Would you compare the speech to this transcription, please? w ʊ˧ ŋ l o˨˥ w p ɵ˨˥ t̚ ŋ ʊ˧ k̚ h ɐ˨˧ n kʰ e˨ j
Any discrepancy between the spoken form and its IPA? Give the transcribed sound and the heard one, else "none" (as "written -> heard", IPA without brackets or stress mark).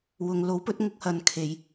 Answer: none